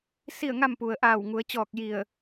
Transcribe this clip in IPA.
s i˥˨ ə̯ ŋ a˥˨ m p u˩ ə̯ ʔ aː˧˩ w ŋ u˩˧ ə̯ t͡ɕ ɔː˧˩ k̚ j i˧˩ ə̯

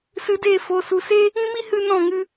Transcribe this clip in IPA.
s ɨ˧ d e˦˨ f o˨ s u˨ s e˦ | ĩ˦ m i˦ h ɨ˧ n ɔ̃˦˨ ŋ ɨ˧

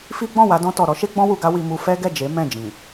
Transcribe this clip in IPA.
f i˦ ɡ͡b ɔ̃˦˨ w a˧ d ɔ̃˧ t ɔ˨ ɾ ɔ˨˦ ʃ e˦ ɡ͡b ɔ̃˦ w u˧ ɡ a˦ w i˧ m u˧ f ɛ˦ ɡ ɛ˦˨ d͡ʒ e˨˦ m ɛ̃˦˨ d͡ʒ ĩ˨

